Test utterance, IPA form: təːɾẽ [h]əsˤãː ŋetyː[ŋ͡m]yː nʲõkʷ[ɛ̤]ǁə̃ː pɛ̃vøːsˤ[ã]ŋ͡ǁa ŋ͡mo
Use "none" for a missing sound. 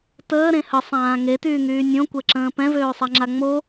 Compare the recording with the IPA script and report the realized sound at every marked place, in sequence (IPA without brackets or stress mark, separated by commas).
h, ŋ, ɛ, a